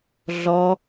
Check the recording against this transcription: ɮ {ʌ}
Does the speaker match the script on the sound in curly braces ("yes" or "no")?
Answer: no